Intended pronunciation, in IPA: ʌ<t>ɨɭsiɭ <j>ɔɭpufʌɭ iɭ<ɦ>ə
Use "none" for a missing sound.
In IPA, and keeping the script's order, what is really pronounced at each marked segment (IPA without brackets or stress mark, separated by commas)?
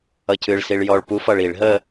cʰ, j, ɦ